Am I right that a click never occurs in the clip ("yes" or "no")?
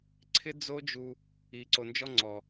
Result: no